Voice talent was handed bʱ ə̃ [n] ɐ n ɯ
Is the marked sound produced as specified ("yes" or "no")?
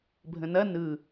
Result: yes